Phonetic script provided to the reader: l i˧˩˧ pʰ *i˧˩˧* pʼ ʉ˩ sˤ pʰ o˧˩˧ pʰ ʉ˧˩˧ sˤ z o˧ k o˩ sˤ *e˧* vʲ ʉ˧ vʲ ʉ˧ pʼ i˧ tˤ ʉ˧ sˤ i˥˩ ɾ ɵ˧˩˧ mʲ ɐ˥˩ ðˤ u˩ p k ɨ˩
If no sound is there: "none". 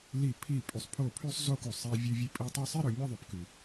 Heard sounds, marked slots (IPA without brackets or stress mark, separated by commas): i˧˩˧, e˧